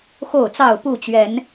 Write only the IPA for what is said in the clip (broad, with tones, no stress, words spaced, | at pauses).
xo˥˨ʊ̯t͡sɑ˥˨ʊ̯pu˥˨t͡ɕɥɛ˨˦n